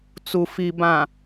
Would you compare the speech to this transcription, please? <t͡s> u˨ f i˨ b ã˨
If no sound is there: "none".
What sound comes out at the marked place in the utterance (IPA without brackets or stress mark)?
t͡s